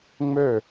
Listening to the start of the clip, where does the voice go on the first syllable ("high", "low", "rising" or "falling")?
falling